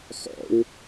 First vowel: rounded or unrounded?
rounded